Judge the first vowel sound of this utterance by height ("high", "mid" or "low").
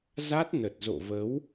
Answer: low